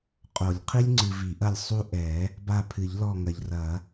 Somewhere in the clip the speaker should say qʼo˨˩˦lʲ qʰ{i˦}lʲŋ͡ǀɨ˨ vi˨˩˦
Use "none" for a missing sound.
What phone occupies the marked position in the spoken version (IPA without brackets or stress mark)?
i˦